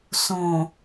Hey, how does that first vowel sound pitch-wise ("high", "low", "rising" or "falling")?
low